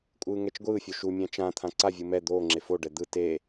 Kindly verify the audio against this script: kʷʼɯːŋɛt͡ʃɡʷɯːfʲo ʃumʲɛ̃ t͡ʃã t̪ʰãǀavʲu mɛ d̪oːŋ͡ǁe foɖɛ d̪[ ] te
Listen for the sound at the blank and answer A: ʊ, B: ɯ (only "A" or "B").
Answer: B